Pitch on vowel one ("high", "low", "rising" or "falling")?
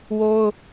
high